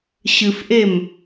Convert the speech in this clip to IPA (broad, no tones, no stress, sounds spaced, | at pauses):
ɕ ɨ f ʔ e m